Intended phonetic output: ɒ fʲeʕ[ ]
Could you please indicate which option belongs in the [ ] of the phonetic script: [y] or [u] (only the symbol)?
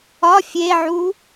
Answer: u